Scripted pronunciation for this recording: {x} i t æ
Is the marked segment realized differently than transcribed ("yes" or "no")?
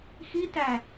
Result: no